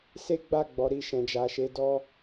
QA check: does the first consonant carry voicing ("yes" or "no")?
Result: no